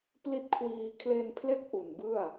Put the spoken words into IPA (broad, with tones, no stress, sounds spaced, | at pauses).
p l i˦˥ t̚ kʰ w iː˧ kʰ l e˧ n pʰ l e˦˥ k̚ ʔ u˨˩ n b ɯ˥˩ a̯